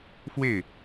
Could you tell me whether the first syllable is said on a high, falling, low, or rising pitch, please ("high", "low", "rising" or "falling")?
falling